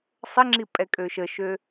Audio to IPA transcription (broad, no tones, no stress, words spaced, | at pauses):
sˤəŋ͡ǁi pʼɛkʼøʃəʃø